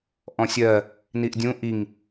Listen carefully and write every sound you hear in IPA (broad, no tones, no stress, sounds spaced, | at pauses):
ʔ ɔ̃ sʲ ɜ | n i ʔ dʲ ũ ʔ i ŋ